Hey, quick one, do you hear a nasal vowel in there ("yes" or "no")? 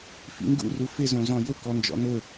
yes